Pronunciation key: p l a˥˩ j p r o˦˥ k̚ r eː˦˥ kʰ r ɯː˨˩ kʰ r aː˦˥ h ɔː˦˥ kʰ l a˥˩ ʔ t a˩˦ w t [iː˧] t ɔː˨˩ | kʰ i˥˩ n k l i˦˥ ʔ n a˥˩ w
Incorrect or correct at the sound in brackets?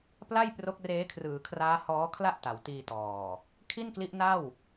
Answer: correct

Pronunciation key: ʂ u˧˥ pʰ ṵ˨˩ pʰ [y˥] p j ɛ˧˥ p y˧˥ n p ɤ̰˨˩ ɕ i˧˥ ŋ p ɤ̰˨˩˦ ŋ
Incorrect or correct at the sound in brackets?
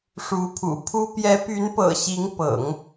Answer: incorrect: u˥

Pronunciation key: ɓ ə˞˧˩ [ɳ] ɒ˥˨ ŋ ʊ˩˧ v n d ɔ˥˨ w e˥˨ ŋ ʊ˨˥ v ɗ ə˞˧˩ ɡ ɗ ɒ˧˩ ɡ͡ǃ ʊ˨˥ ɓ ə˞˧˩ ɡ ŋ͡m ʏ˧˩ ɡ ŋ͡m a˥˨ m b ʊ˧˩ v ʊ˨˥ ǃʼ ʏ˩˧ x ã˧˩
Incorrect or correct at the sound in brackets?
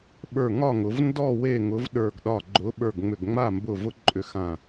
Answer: incorrect: ŋ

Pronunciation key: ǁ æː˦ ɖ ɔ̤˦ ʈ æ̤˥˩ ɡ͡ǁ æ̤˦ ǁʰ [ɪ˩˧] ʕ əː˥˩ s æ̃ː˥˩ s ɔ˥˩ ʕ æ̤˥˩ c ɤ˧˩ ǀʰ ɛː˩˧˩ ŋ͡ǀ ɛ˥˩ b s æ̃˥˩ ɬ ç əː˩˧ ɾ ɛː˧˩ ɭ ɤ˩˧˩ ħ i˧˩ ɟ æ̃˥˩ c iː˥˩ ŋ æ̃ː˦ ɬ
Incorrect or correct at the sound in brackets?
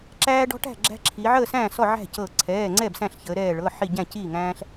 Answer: incorrect: i˩˧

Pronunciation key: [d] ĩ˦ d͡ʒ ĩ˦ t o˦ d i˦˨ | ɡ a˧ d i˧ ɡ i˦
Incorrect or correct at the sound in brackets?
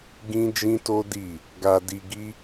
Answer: incorrect: ɡ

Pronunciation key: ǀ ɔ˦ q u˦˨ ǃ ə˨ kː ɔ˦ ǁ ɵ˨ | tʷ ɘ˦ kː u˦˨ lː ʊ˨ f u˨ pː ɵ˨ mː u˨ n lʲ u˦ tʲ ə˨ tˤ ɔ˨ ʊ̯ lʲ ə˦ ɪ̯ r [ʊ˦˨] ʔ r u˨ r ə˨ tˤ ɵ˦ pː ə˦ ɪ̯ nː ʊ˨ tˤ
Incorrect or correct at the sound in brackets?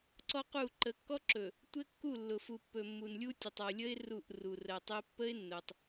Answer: incorrect: u˦˨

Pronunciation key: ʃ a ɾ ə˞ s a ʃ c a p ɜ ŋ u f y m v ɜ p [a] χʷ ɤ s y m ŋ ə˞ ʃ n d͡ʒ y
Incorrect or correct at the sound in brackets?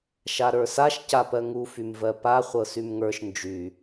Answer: correct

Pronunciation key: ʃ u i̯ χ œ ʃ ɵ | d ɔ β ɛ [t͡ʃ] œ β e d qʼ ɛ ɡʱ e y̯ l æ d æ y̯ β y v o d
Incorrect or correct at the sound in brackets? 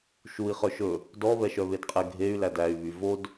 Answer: incorrect: ʃ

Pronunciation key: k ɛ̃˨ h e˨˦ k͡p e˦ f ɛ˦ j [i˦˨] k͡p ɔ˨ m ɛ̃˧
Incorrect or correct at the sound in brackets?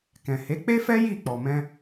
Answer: correct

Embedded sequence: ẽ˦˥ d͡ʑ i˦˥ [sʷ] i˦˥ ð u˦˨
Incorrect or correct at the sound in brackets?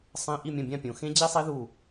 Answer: incorrect: sˤ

